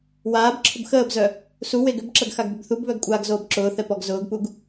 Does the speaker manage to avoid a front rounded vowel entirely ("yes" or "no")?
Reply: no